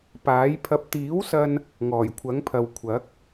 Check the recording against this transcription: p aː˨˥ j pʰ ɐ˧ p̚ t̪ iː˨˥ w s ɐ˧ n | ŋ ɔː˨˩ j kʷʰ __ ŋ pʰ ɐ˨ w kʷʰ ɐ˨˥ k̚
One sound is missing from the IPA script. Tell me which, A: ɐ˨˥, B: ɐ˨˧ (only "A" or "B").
A